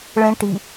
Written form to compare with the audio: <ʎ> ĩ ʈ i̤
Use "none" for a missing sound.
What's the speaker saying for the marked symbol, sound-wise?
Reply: ɭ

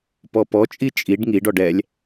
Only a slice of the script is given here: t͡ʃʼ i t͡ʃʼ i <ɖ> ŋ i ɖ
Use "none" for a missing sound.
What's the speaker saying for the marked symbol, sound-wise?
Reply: ɖ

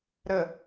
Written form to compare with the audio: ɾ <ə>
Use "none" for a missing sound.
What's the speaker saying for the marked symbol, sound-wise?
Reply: ə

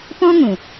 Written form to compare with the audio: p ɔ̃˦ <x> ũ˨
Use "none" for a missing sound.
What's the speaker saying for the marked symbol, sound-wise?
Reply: ŋ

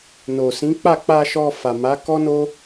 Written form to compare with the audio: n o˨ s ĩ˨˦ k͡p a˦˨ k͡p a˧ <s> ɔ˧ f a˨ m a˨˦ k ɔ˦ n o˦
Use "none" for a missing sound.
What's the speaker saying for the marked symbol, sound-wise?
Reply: ʃ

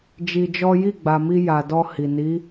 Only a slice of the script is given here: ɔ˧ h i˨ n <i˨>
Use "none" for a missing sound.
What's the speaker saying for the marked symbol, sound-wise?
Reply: i˨˦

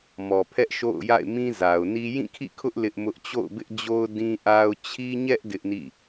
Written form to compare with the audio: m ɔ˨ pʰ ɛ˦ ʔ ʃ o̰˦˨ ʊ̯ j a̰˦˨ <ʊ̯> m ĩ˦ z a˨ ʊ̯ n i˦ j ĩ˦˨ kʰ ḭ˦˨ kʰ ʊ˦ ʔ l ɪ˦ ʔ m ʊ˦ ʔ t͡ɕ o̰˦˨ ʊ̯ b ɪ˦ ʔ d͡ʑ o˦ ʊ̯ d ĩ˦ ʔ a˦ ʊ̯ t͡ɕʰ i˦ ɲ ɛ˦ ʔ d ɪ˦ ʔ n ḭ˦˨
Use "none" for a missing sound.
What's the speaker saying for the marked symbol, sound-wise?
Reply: ɪ̯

